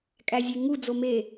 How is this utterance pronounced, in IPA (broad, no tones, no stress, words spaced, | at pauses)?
kʼæzʲeŋu d͡zome